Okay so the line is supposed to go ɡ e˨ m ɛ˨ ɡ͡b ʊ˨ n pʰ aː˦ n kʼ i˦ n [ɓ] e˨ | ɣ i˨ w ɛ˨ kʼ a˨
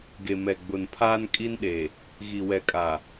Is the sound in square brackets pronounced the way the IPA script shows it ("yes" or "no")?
no